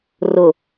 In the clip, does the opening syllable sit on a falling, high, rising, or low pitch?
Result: low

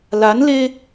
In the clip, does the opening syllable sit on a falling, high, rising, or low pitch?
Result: rising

